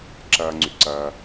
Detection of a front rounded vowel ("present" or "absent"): present